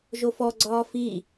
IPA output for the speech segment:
ʒ o f ɔ ɡ͡ǀ ɒː f i

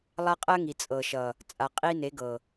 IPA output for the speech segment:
lˠ a˦ qʼ ɜ˦ ŋ i˨ t͡sʼ ɤ˨ ʃ ʌ˨ | t͡sʼ a˨ qʼ i˦ n e˨˦ ɡ ɤ˨

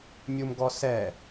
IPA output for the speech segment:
mʲ u m ɡ ɔ s ɛ

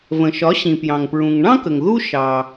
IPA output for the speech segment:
v ə̃˩ ʃ ɒ˩˥ ɕ ĩ˩ p j ɑ̃˩ ŋ p ɹ ũ˩ ŋ ɳ ɑ̃˥ k ə˩ ŋ ð u˥ ʃ ɑ˩

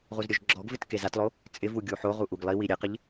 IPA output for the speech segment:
ʁ u z ɾʲ o ʒ ɡ͡ǁ ɔ ɡ v ɪ t k e z a t lˠ o | t͡sʼ ɪ v u ɡʲ u ħ o ʁ u ʔ u ɡ lˠ i w i ɾʲ e q ɪ ʎ

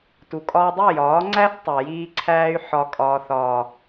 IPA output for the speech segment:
t u˨ kʼ ɒː˧ dˤ u˦˨ j ɒː˨˦ ŋ͡ǀ æ˦ θ tˤ æ˨ j iː˧ ǀʰ æː˧ y̯ ħ ɒ˨ kʼ ɒː˨ θ ɒː˨

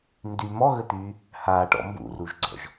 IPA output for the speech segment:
n d y m ɔ ɣ ə t̪ yː | h aː ʈ ɔ̰ m b ṵ r u ʒ ɡ͡ǀ ɔ̰ ʒ

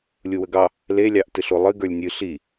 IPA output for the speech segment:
lʲ u w ə ɡ ɑ | l e lʲ ɑ ʔ t ɨ ɬ o lˠ ɨ ɡ ə˞ lʲ nʲ ɨ ɬ i

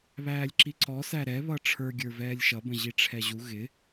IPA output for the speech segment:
β æː lʲ ǁ i ǀ ɔ s æ ɾ ɛ β ʌ ʈ͡ʂʰ ə˞ ɡʲ ə˞ v ɛː lʲ ʃ ʌ b ə̃ ʑ i ʈ͡ʂʰ ɛ ʑ u ɣ ɪ

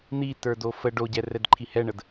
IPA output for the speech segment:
n̪ i t ə˞ d o f ə ɖ o ɟ ɛ r ɛ d ǃʰ i h ɛ ɳ ə d

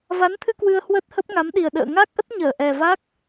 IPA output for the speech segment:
v a˨˦ n t̪ʰ ɨ˧ k w ɨ˧ ə̯ h w ə˦˥ t̚ h ə˦˥ p̚ ŋ a˨˦ m ɗ i˨˩ ə̯ ɗ ə̰ː˧˨ ŋ a˦˥ k̚ ʔ ə˦˥ t̚ ɲ əː˧˩ ʔ ɛ˨˩ v a˦˥ k̚

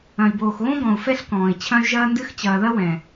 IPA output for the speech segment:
ɐ̃˨ i̯ b oː˨ x ɣ õ˦ ɡ ɔ̃˨ u̯ f ɛ˦ ɬ k ɔ̃ː˨ i̯ t͡ɕʰ ɐ̃˦ y̯ ʒ ɐː˦ n d ɨ˦ x t͡ɕ ɐː˨ ð ɐ˦ w ɛ̃˨

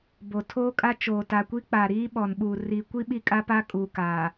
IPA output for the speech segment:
b o˨ tʰ oː˦ kʼ a˦ t͡ʃ oː˨ t a˨ kʷ i˦ k͡p a˨ ɾ iː˦ ɓ ɔ˨ n ɓ uː˨ r i˨ kʷ i˦ ɓ i˦ kʼ a˦ p a˦ kʼ uː˨ k aː˨

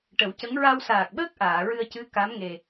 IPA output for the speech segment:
ʈ ə˨˩˦ w c ə˧˥ ŋ ɹ a˧ w s aː˨˩ k̚ ɓ əː˦˥ k̚ ʔ aː˨˩˨ ɹ ɨ˧ ə̯ c ɨ˧˥ k a˧˥ m ŋ e˨˩

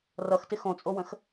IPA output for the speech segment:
r ʌ x t ɪ x õ t͡sʼ o w ə̃ x

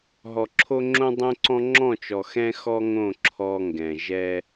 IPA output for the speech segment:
ɦ ɔ˨ ǁʰ o˦ ŋ͡ǁ õ˦ dˤ õ˦ ǀ ɔ̃˦ ŋ͡ǁ ɔ̃˦˨ t͡ʃ ɔ˨ x ɛ̃˦ x ɔ˦ ŋ õ˦˨ ǁʰ ɔ˦ ŋ ɡ ɛ̃˨ ʒ ɛ˦

